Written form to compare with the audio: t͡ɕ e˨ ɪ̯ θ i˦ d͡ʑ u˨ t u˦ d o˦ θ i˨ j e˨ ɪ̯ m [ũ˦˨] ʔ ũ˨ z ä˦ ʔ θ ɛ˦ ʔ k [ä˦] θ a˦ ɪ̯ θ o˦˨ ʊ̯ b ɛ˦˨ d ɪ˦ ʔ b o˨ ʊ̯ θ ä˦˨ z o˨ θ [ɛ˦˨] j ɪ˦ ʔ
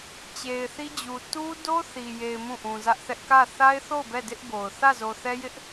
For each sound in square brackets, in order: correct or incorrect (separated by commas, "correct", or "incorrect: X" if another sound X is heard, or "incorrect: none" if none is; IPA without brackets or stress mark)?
correct, incorrect: ä˦˨, incorrect: ɛ˦